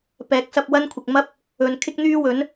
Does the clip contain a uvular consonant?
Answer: no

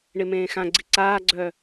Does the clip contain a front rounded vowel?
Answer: yes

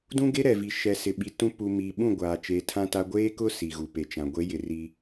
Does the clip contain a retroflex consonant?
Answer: no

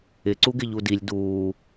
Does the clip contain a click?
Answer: yes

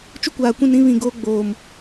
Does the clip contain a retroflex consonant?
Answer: no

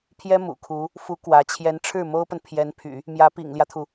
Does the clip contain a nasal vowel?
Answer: no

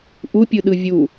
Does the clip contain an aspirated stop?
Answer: no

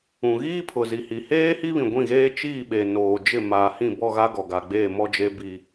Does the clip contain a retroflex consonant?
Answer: no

